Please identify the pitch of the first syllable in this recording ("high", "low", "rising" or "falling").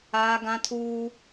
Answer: high